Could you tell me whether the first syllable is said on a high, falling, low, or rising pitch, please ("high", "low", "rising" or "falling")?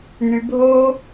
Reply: low